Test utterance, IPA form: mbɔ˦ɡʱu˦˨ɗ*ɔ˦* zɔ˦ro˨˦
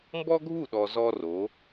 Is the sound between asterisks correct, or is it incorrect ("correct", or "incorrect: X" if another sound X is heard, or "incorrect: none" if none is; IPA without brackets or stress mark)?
incorrect: ɔ˨